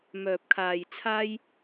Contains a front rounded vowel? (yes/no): yes